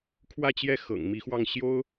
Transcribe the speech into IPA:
kʰ w ä˥˧ t͡ɕ j ɛ˥˩ x ɤ̰˨˩ ŋ m i˧˥ x w ɑ˥˩ ŋ ɕ j o˥ ʊ̯

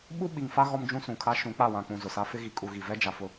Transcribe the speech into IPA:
ɓ u˦ ɓ i˨ ŋ f a˦ ɣ ɔ˦ m d͡ʒ ũ˦ s ũ˨ kʰ a˦ ʃ ũ˨˦ k͡p a˦˨ w ã˨ k͡p ũ˨ z ʊ˨ s a˦ f ɪ˦ ɣ i˨ kʼ u˨ ɣ i˨ v ɛ˦ d͡ʒ a˨ f ʊ˨

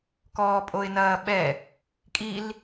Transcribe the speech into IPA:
k ɔː pʼ o ɪ̯ n ɐː ɓ ɛ | kʼ i l

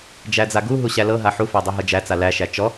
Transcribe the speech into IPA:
d͡ʒ æ d͡z a ɡ u ɦ u ɕ æ l ɤ ɦ a ħ u f æ dˤ æ ɦ ɤ d͡ʒ æ t͡s a l æ ʃ æ t͡ʃ ɔ

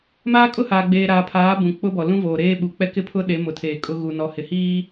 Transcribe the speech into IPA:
m aː˦ kʼ ʊ˦ h aː˨ ɡ͡b eː˨ ɾ aː˨ pʰ aː˨˦ b ũ˨ k͡p ʊ˦ b ɔ˨ l ũ˦ v oː˨ ɾ eː˦ ɓ u˨ k͡p ɛ˦ k ɪ˦ pʰ ʊ˦ ɗ e˨˦ m ʊ˨ tʰ eː˨ kʼ ʊ˦ ɣ u˨ n ɔ˨ h ɪ˨ h iː˦

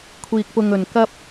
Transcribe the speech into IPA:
kʷʰ iː˧ k̚ p ʊ˧ ŋ ɵ˨ n k ɐ˥ p̚

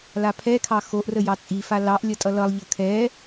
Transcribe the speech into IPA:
l a pʰ ɛ kʰ ɑ x o ʔ r ə j ɑ t͡sʼ i f a l ɑ ʔ lʲ ʌ tʼ ʌ l ʌ lˠ ʎ ʌ kʰ ɛ

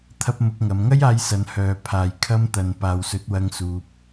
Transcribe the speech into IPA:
t̪ʰ ɐ˧ p̚ m ʊ˧ k̚ ŋ ɐ˨˧ m ŋ ɐ˥ j aː˧ j s ɐ˨˧ n h œː˨ pʰ aː˨ j kʰ ɐ˧ m t̪ ɐ˨ n p aː˨ w s ɵ˨˥ t̚ w ɐ˧ ŋ s uː˧ p̚

